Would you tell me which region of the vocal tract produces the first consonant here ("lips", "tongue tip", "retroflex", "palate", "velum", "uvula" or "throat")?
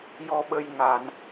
palate